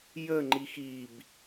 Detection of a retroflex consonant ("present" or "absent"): absent